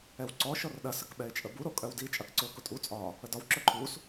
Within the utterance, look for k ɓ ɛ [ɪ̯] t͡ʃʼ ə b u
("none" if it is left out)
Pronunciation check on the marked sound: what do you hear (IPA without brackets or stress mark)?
ɪ̯